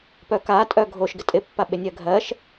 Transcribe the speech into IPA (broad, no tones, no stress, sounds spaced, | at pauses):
p œ k a tʼ œ ɡʱ o ʃ ɡ ɪ tʼ ɪ pː a ɓ ɪ nʲ ɜ ɡʱ ɜ ʃ